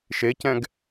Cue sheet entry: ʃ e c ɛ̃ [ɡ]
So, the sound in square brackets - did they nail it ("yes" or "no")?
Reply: yes